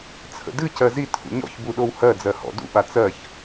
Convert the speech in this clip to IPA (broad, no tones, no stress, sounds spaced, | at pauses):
t͡sʰ ə̰ d ɨ c ɜ z i tʰ ṵ ɲ ɔ̰ ç b u ɗ o w h ɜ d͡z ɜ h ɔ̰ d ṵ ɓ a t͡s ɜ ç